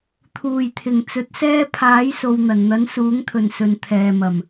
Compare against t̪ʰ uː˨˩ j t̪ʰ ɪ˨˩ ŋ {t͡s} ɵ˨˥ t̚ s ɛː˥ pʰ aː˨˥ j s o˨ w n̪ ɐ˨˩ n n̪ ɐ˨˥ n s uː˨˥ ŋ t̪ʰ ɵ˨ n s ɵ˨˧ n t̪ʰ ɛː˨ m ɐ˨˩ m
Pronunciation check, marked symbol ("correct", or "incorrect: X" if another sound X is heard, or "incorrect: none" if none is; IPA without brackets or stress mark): correct